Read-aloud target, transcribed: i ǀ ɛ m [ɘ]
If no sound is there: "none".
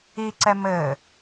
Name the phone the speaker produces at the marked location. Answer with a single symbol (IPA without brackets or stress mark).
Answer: ɘ